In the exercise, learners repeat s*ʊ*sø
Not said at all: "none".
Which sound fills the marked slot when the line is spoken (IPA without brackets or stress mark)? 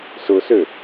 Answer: ʊ